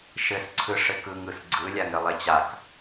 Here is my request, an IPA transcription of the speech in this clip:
ʃ ɘ s ǀʰ ɯ ʂ ɘ k ɯ ŋ ɯ s ɡ͡ǀ ɯ lʲ a ŋ ɾ ɘ lˠ e t͡ɕ a k

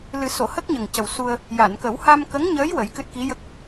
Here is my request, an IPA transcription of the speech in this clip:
l ɨ˨˩˦ s o˨˩˨ h ə˦˥ k̚ ɲ ə˨˩ ŋ c ə˨˩ w s u˧ ə̯ | j a˨˩˨ n k ə˨˩˦ w h a˧ m k ə˧˥ ŋ ɲ əː˧˥ j w ə˨˩˦ j k ɨ˦˥ t̚ k i˧˥ j ə˦˥ k̚

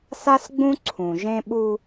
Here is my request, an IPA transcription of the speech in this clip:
s a˦ s ɡ͡b ũ˦ ǀʰ ũ˨ ʒ ẽ˦ ɓ u˦

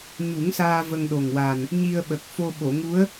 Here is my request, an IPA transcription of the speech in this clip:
ɲ u˨˩˦ ŋ s aː˧ v ə˧ ŋ ɗ o˨˩ ŋ w a˨˩ n | ɲ i˧ ə̯ ɓ ə˨˩ k̚ f o˧ ɓ o˨˩˨ ŋ u˧˥ ə̯

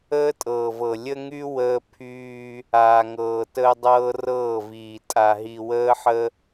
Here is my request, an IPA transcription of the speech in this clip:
əː˦ tʼ ɤː˨ v ɤ˨ lʲ ə˦ ŋ y˦ w əː˦ pʰ yː˦ | aː˨ ŋ ɤː˨ t əː˦ dˤ ɤː˦ r ɤː˦˨ v iː˨ tʼ a˨ ɦ i˨ w əː˦ ħ ə˦

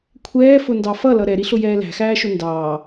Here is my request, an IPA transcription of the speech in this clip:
kʷʰ ɛː f ʊ n d ɑ f ʌ l ʌ ɾ ɛ ɾ i ɬ ʊ j ɛː l æ̤ x æː ʃ ʊ n d ɑː

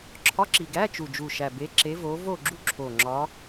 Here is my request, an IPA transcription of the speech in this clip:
ǁʰ ɒ˧˥˧ ǁ i˨˩ ɡ æ˧˥˧ t͡ʃ u˨˩ d͡ʒ u˨˩ ʃ æ˨˩ b e˨˦ ǁ e˨˦ v o˨˦ v o˦˨ ɡ͡ǁ u˦˨ ǁʰ o˨˩ ŋ͡ǁ ɒ˨˦

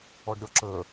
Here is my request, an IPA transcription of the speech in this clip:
ɔ ɖ ɾʲ ɔ ǁ ə

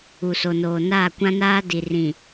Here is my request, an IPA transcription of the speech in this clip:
u˨ s o˨ n oː˨ n aː˦˨ kʷ ã˦ n aː˦ d i˨ r ĩ˨

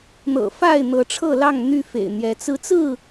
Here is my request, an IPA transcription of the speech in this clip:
n̪ ɤ̰˨˩ f a˥˨ ɪ̯ n̪ ɤ˨˦ ʈ͡ʂʰ ɤ˥˨ l ɑ˥˨ ŋ n̪ y˦ f ḛ˨˩ ɪ̯ n̪ j ɛ˨˦ t͡s ɹ̩˨˦ t͡s ɹ̩˥˨

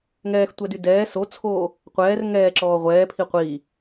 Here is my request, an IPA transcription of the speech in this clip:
ŋ ɛː x tʷ ɛ d y d ɛː s o t͡sʰ oː | qʷ ɛː r ŋ ɛː ǁ ɔː ʁʷ ɛː pʰ i qʷ iː

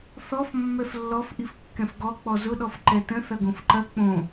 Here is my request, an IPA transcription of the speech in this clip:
θ ɔ f mː ɛ f lː ɔ f ʔ i f kː ɛ̃ f ɡ ɔ k͡p ɔ z ʊ ɗ ɔ f ǃ ɛ t ə̃ θ ɐ ɡ õ f ǃ ɐ k͡p õ

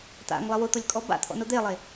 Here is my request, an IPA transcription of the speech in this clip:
t̪ a̰ ŋ lˠ ɪ w ʊ t̪ o lʲ kʼ ɔ b a̰ t̪ʰ ɔ̰ n o d̪ e lˠ e

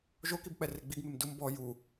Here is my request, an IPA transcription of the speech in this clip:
ʒ o k i b k͡p ɛ r e ɡ͡b i ɡ m e m d ʊ m b ɔ j u

